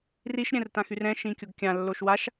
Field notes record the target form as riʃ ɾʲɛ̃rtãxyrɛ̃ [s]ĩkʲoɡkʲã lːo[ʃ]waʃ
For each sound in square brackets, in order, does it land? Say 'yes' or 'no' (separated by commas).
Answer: no, yes